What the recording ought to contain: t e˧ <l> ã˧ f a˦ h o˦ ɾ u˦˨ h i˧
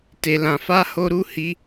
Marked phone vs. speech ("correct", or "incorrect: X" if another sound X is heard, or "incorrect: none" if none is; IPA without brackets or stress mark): correct